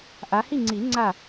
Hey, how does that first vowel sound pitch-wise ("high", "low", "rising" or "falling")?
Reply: rising